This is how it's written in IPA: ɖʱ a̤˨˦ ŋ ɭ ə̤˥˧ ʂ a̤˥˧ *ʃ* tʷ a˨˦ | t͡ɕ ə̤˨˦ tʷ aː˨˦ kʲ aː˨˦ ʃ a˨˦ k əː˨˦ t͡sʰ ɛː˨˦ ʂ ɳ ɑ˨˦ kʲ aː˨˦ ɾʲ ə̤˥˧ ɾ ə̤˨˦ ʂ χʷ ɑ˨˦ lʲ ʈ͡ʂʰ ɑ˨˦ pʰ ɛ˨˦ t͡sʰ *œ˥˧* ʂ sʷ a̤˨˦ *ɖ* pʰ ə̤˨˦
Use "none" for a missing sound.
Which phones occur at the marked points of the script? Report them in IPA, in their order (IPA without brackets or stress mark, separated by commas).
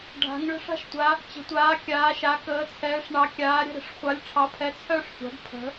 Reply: ʃ, œ˥˧, ɖ